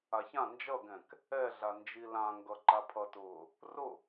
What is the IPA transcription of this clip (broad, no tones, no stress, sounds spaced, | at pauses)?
a ç ã n d͡ʒ ʌ ɡ ɛ̃ k | ɛ ɮ a n d͡ʒ i l ã ŋ ɡ ʌ ǃ a pʰ ʌ t ʊː | r ʊ